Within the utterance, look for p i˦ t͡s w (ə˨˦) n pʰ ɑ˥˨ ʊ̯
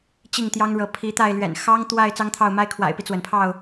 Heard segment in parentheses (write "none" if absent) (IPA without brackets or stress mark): ə˩